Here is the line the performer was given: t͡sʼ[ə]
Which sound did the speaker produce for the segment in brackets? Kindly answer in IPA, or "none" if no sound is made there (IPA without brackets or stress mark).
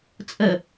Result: ə